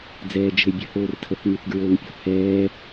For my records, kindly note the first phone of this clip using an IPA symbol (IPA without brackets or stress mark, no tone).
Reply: d͡z